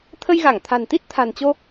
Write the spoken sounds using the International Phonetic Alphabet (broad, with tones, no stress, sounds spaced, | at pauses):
t̪ʰ ə˧ j ɣ a˧˩ ŋ t̪ʰ a̤˨˩ n t̪ i˦˥ t̚ t̪ʰ a̤˨˩ n t͡ɕ o˧